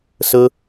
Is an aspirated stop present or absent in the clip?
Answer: absent